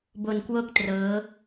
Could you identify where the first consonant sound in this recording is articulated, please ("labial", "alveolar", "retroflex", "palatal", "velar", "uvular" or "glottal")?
labial